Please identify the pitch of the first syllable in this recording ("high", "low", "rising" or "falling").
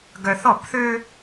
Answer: high